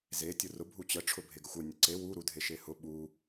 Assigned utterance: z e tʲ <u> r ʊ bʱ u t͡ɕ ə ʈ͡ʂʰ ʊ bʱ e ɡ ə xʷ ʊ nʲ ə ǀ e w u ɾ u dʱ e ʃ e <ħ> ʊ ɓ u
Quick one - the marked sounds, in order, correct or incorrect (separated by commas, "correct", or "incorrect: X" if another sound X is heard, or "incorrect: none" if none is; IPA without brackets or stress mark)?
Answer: incorrect: ʊ, incorrect: h